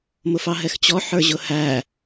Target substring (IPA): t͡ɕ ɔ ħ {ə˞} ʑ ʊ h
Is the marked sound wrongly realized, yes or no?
no